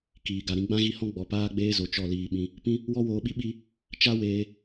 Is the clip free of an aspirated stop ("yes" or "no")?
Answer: yes